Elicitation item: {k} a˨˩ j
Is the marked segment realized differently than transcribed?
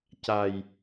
yes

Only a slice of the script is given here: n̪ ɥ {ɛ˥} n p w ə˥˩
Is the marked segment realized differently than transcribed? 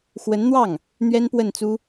no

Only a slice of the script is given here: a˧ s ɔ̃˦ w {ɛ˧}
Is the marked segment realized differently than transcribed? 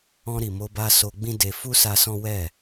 yes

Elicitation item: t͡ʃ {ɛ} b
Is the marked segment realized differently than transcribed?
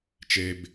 yes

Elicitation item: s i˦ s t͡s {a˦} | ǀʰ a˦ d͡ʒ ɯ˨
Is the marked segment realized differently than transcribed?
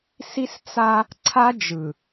no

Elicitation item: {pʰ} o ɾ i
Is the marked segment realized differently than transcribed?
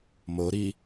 yes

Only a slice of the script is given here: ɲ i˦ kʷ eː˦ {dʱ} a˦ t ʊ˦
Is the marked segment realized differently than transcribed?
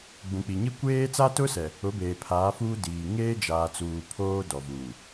yes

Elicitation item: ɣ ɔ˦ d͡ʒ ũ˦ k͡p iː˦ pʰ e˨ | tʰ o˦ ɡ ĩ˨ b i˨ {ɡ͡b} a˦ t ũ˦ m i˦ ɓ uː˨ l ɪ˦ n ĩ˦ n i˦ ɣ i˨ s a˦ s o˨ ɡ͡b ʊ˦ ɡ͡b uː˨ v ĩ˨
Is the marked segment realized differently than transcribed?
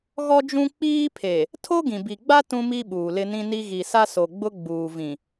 no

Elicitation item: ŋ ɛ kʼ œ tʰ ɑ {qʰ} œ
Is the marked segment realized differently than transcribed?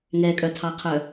no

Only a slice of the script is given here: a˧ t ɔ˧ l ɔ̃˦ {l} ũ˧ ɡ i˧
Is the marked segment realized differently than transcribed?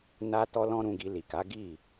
yes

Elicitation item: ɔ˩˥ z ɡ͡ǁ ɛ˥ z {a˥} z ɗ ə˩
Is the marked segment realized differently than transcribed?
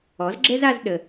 yes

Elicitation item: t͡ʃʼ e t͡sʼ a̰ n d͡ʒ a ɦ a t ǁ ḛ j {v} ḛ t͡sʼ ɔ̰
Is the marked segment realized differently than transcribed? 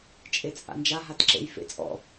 yes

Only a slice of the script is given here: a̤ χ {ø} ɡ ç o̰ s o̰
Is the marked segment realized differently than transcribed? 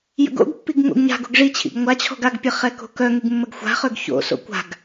no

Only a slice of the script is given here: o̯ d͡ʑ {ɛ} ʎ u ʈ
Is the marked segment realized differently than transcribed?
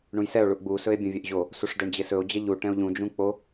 no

